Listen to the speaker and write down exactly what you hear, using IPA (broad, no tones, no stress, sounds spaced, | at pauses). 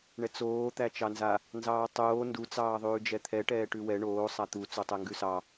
ɳ ɛ t͡s oː t̪ æ t͡ʃ ɑ n z a | n z ɑː tˤ oː n d u t͡s ɑː ðˤ ʉː d͡ʒ ɛ t̪ʰ ɛ ʈ ɛː ʈ ʉ w ɛ ɳ oː sˤ a t̪ u t͡s o tˤ ɛ ŋ ɡ ʉ s ɑ